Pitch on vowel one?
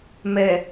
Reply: low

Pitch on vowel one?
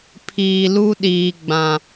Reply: low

